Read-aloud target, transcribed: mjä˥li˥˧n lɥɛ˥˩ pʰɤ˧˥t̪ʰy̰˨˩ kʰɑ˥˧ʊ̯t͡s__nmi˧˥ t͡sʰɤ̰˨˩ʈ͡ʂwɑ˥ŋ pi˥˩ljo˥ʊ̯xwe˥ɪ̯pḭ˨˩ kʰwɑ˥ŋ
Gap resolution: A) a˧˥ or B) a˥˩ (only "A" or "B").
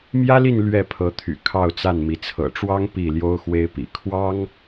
B